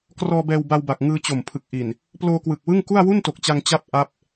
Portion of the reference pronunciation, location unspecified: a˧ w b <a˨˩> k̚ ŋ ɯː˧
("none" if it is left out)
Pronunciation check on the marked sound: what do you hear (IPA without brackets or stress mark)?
a˨˩